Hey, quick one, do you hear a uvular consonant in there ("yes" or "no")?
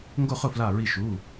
yes